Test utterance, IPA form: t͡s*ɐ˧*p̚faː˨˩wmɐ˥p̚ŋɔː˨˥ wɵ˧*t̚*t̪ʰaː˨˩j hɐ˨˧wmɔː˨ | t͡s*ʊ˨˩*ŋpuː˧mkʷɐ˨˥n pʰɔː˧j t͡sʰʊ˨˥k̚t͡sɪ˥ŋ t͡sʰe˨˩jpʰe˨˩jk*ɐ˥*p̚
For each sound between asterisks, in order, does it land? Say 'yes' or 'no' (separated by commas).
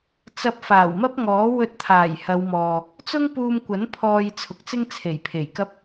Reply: yes, yes, no, yes